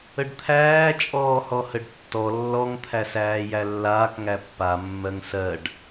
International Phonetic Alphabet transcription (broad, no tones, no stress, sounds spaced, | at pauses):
ə ɖ t̪ʰ æː t͡ʃʼ ɔː h ɔ h ə ɖ tː ɔ lː ɔ ŋ t̪ʰ æ s æː j æ lː aː k ŋ æ pː a mː ɜ ŋ s ɜ ɖ